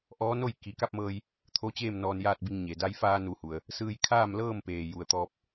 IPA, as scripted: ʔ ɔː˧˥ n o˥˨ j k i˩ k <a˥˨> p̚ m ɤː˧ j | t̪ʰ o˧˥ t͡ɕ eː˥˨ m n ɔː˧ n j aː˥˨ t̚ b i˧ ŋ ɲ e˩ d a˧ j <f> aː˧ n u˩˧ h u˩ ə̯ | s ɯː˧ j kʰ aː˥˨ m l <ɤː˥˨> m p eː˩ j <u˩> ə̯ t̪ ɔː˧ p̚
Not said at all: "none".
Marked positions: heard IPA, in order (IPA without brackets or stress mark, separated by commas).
a˥˨, f, ɤː˥˨, u˩